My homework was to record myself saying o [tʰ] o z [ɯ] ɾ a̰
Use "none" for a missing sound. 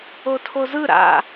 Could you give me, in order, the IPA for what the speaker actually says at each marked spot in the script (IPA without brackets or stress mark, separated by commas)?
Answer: tʰ, ɯ